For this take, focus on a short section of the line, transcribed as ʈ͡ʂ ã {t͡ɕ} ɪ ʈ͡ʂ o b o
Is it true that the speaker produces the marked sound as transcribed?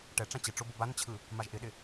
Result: yes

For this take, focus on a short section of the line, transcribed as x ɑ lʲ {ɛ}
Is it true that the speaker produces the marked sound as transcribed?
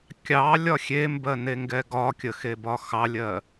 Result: no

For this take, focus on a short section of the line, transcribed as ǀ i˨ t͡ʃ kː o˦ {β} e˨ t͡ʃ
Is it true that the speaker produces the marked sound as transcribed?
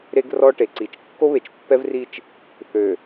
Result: yes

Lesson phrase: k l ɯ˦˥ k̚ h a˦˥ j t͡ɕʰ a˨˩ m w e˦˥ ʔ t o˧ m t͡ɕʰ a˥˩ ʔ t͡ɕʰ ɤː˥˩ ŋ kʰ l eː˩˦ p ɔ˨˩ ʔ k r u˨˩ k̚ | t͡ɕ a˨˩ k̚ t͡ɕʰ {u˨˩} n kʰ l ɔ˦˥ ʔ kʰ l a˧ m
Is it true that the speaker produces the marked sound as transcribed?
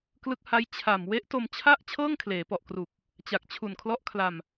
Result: yes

